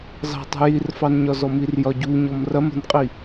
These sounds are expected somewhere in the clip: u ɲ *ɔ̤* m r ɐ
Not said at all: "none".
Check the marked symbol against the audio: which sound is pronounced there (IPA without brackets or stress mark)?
ɔ